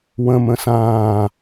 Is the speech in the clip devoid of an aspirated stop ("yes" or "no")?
yes